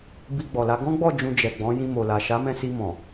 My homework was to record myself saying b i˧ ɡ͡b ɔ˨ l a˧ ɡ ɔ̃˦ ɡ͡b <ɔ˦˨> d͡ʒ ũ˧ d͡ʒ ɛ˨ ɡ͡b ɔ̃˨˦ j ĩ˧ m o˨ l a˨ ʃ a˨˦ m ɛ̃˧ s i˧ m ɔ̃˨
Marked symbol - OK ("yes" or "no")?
yes